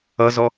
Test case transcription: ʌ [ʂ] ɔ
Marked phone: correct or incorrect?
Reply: incorrect: z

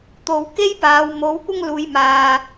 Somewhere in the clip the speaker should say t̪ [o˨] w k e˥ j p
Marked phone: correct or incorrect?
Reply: correct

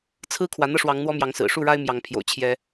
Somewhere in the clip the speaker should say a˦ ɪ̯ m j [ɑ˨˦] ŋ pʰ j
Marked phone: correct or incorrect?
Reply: correct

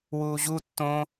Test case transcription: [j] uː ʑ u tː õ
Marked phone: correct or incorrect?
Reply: incorrect: w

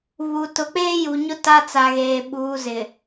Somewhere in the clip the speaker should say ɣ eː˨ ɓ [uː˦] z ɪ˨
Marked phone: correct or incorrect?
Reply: incorrect: uː˨˦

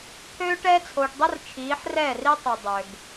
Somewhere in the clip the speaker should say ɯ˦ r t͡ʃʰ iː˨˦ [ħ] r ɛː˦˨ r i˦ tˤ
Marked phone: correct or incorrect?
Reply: correct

